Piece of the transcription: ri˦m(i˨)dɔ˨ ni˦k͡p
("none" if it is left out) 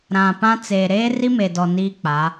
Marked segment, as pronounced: e˨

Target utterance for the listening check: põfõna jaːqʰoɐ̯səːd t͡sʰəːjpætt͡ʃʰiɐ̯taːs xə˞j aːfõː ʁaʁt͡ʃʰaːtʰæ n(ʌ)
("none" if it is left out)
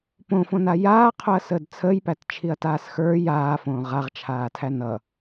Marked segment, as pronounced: ʌ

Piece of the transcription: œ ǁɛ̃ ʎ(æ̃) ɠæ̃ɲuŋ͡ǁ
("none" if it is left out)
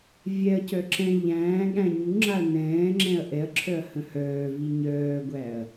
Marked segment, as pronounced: æ̃ː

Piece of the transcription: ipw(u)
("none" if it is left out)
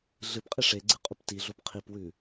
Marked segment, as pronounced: ʉ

